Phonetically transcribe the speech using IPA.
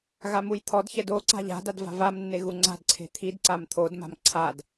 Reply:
ɣ a m u j t̪ʰ ɔ d ç ɛ d o ǀ a̤ ʎ a̤ d a d v a̤ v a m nː e ɣ u ŋ͡ǀ a̤ d ǀʰ e̤ t̪ʰ i d ǀ a m t̪ʰ o d m a̤ m ǀʰ a d

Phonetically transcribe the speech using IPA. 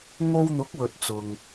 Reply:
ŋ o˧ w n̪ ʊ˨˥ k̚ w ɵ˨ t̚ t͡s ʊ˨ ŋ

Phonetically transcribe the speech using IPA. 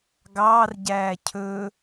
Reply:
ɡ ɑː r ɟ æː cʰ ɵ

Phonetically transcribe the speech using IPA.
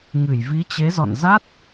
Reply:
ŋ ɨ˧˩ j v i˨˦ t͡ɕ e˨˦ z ɔ̰˧˨ n z a˦˥ t̚

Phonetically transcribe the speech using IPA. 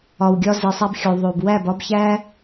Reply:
ɒ˨ w ɡʲ ɒ˧ z i˨ sˤ æ˧ b xʲ o˨ ðˤ o˨ b w æ˦˨ b ɒ˦ b ç æ˦

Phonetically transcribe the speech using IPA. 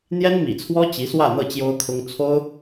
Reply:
n̪ j ɛ˥ n m ḭ˨˩ t͡sʰ w ɔ˥ t͡ɕ i˧˥ s w ä˥˧ n̪ ɤ˥˩ t͡ɕ j o˥ ʊ̯ kʰ ʊ˥ ŋ t͡sʰ o˥ ʊ̯

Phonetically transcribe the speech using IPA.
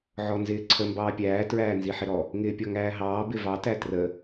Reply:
ʕ ɔ n z ɪː ǀʰ ə m b ɑː pʲ æː t ɹ æː n z i ħ ɪ ɾ ɔ | ŋ ɪː pʲ ɔ ŋ æː ɦ ɑː b ɪ v ɑ t æ t r ə

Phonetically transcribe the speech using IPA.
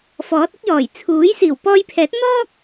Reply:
f ɔː˨˥ t̚ ɪ˥ k̚ j ɔː˨˩ j t͡sʰ uː˨˥ j s iː˨˩ w p ɔː˧ j pʰ ɛː˨˥ t̚ n̪ ɔː˥ k̚

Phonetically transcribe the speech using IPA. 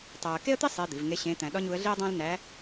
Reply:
tˤ æ˧ ə̯ k e˥ ə̯ t̪ i˥ sˤ e˧˥ d̪ i˩˧ v ŋ e˧˥ ɕ ẽ˧˥ t̪ æ̃˧ ɗ ɒ˥ ɲ u˧˥ ə̯ ɮ i˥ ə̯ dˤ æ̃˥ l n æ˧˥

